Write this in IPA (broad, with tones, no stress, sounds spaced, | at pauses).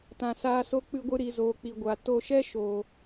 t ã˨ s aː˧ s o˦ k͡p ɨ˧ ɡʷ ɨ˧ ɾ i˨ z oː˨ k͡p i˨ ɡʷ a˨ t o˧ ʃ ɛ˦ ʃ oː˨